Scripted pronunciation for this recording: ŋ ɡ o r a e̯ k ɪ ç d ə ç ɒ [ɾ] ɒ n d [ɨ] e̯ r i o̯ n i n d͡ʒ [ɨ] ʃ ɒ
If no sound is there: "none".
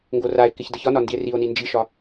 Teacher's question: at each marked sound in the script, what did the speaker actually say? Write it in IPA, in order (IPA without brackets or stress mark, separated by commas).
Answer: n, i, i